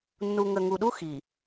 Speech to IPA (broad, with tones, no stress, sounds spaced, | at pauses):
nː u˨ ŋ ə˨ ŋ u˨ ɗ u˦ x i˨